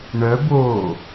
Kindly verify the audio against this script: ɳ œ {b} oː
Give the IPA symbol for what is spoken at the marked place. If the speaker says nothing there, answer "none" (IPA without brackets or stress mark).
b